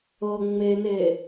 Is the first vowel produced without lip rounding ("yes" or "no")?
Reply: yes